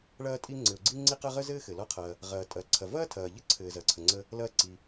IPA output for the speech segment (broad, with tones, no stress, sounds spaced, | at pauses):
ɭ ɐː˧ tʼ i˧ ŋ͡ǀ ɘ˩ ʊ̯ ɡ͡ǀ i˧ ŋ͡ǀ i˧ q ɐ˧ ʁ ə˥ z ɘː˥ x ɘ˩ l ɔ˧ qʰ ɐː˩ | ʁ ɐː˩ tʼ ɐ˩ ǀʰ ɐ˩ v ɐː˥ tʰ ɐː˩ ʎ ə˥ ǀʰ ɘː˩ z ɐ˩ ǀʰ ə˩ ŋ͡ǀ ə˧ | l ɐː˧ ǀ i˩